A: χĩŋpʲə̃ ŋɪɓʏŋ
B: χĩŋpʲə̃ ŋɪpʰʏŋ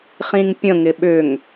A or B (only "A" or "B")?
A